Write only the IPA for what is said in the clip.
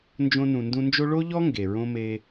nd͡ʒõ˧nũ˨ndũ˧nd͡ʒo˦ ɭo˦ʎɔ˦ ŋɡe˨ɹõ˦ me˧

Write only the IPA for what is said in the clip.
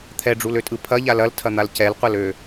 t̪ʰɛɖ͡ʐuløtʼɯ pʰɐʎa lɐltʰɐn̪al cɛlqʷɐlø

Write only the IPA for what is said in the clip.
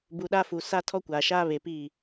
bu˨ɗa˦fu˨ sa˦ tʰɔ˦kʷaː˨ʃaː˦ βe˨pi˦˨

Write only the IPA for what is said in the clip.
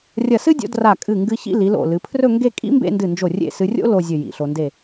rʲɐ˧˩sɨ˥dʲo̰˧ dra˧˩kʼɨ˧˩ŋɡɨ˧ çḭ˥˧li˩˧lo̰˧˩ lɨ˩˧pʰrɵ˥˧ŋɡe˥˧ kʼḭ˥mbḛ˥˧ ndɨ˧˩nd͡ʒo˧˩ rʲḛ˥˧ sɨ˧rʲo̰˥ lo˥˧zʲɵ˧˩ jḭ˩˧ɬo˧ nde˧˩

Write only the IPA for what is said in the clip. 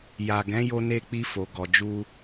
ja˨ɡɛ̃˨˦ jo˦ne˦k͡pi˦ fo˧ɡɔ˧ d͡ʒu˦

